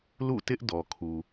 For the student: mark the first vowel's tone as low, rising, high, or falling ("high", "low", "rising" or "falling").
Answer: falling